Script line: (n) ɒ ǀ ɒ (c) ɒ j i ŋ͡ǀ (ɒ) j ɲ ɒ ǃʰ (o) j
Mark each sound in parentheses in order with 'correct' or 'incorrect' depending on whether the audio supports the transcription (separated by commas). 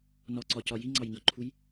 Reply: correct, correct, incorrect, incorrect